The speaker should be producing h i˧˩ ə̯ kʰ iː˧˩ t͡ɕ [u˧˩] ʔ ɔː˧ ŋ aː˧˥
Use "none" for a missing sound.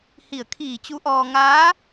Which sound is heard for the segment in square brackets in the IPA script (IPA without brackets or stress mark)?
u˧˥